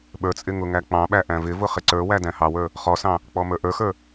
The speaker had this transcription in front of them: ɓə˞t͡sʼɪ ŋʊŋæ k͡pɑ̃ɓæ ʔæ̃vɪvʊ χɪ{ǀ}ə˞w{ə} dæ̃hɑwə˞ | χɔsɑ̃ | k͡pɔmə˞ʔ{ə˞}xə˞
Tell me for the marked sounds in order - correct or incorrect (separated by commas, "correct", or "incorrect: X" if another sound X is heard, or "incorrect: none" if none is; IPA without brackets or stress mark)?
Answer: correct, incorrect: æ, correct